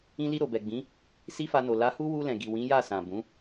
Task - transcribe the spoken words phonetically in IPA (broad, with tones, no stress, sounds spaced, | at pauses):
ĩ˧ l i˧ ɾ o˨ b ɛ˨ ɡ͡b ĩ˨˦ | s i˦ f a˧ n o˨ l a˨˦ h u˦ w u˧ l ɛ̃˨ ɡ i˨ w ĩ˨˦ j a˦˨ s ã˨ b ũ˨˦